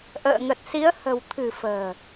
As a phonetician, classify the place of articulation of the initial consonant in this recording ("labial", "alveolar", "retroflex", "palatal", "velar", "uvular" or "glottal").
glottal